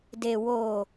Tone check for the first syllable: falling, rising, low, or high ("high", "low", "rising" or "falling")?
low